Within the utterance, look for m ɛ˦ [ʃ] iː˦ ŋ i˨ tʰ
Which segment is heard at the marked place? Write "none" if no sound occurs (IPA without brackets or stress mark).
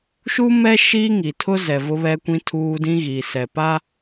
ʃ